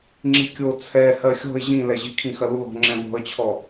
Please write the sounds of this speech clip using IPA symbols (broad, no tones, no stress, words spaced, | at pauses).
ŋ͡ǁikʲo t͡sʰɛ hɜxʲɔ̤ɪ̯ ʑĩlɛʑi kʰĩxɐlulɔ̤ ŋ͡ǁɛ̃vɔ̤ə̯t͡ɕʰɔ